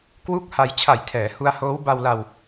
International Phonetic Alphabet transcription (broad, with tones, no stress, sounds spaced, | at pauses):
k w u˥˩ k̚ h a˧ j t͡ɕʰ a˨˩ j tʰ ɛː˩˦ h u˧ a̯ h oː˦˥ w b a˧ w l a˧ w